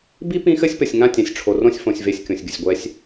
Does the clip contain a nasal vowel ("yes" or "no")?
yes